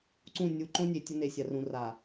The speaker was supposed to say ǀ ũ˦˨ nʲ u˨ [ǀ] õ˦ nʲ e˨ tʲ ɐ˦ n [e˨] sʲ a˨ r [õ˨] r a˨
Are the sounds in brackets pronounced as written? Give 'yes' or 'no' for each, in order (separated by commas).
no, yes, no